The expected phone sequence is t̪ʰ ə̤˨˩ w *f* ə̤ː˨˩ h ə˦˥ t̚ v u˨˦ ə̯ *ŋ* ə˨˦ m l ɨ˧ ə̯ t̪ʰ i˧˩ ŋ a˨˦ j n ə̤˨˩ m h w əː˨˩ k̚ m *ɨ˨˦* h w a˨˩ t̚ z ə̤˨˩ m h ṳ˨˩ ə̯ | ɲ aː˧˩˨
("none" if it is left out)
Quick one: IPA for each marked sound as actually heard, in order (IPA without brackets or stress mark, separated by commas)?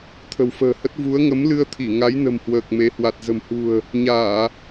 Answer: f, ŋ, e˨˦